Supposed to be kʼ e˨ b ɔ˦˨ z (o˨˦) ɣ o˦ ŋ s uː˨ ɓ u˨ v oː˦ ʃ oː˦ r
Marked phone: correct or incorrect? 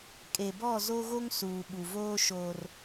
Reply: incorrect